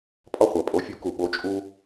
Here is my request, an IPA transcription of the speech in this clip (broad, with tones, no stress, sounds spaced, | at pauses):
pʼ ɒ˧ χʷ æ˩ pʼ o˩˥ fʲ u˩˥ k u˩ ɓ o˩˥ t͡ʃʼ u˧